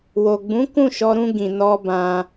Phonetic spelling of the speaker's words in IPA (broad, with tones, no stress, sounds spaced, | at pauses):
w o˨ ɡ͡b ũ˨˦ k ũ˦˨ ʃ ɔ˧ ɾ ũ˧ ɡ ĩ˨ n ɔ˧ b ã˧